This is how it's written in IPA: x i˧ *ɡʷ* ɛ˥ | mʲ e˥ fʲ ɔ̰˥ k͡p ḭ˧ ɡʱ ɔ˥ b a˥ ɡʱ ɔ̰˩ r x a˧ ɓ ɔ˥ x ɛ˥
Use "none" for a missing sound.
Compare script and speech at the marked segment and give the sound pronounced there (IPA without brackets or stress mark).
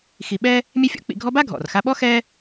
ɓ